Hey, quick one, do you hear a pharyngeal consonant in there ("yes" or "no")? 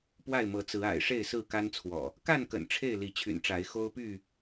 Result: no